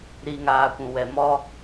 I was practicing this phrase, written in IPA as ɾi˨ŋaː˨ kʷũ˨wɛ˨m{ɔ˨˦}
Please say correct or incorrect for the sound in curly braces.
incorrect